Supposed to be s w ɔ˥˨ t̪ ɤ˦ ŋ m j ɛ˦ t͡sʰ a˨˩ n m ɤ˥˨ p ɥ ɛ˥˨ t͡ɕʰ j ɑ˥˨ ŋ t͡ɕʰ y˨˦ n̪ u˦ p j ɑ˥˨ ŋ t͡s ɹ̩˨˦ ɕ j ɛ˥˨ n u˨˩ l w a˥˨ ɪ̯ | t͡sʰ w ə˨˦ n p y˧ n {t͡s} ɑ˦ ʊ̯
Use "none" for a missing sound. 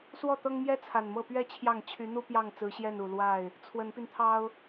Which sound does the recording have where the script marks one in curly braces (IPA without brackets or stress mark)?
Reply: t̪ʰ